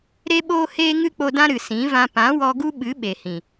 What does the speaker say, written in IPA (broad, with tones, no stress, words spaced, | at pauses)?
ɾe˦ɓoː˦heː˦ ŋɨ˦k͡po˧dã˦ ɾɨ˨sĩ˨˦vã˧ pã˨˦wɔ˧ɡu˦ ɓɨ˨˦ ɓe˨hĩ˨